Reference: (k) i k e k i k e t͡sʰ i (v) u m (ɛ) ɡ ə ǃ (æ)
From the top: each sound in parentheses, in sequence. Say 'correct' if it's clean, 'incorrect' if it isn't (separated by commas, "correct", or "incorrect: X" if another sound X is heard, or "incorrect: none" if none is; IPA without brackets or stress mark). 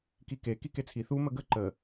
correct, incorrect: θ, incorrect: ə, incorrect: ə